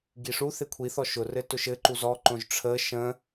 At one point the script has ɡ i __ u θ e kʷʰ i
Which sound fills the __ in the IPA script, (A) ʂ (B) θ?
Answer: A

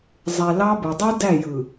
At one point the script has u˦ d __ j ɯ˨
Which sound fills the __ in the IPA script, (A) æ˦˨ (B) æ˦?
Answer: A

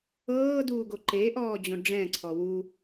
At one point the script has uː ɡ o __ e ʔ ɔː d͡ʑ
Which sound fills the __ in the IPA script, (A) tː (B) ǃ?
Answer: B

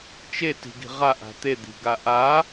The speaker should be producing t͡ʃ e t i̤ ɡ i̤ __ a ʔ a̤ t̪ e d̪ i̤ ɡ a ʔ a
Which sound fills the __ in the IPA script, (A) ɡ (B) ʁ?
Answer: B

